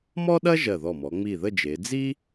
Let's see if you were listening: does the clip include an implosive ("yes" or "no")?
yes